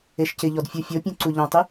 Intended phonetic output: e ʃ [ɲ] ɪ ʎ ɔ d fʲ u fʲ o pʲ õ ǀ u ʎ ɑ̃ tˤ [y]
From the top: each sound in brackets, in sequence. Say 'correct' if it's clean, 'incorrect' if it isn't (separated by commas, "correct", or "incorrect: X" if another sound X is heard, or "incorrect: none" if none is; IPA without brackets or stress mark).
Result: incorrect: c, correct